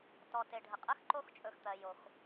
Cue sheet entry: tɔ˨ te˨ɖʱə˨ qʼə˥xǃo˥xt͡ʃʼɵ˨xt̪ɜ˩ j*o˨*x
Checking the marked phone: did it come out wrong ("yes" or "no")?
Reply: yes